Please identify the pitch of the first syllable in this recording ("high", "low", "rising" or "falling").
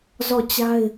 falling